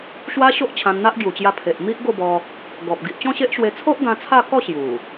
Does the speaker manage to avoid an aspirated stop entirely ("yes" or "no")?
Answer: no